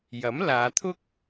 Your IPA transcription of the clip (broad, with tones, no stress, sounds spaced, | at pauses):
j ɐ˨˥ m l aː˨˧ t̪ʰ ʊ˥ k̚